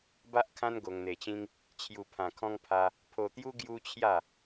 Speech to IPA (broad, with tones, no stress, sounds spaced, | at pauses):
b a˦ ʔ kʰ ã˦ n ɡ o˧ ŋ n̪ e˧ t͡ɕ ĩ˦ ŋ | t͡ɕʰ j u˧ pʰ ã˧ kʰ ɔ̃˦ ŋ pʰ a˦ | pʰ o˧ t̪ j u˦ ɡ j u˦ t͡ɕʰ j a˥˧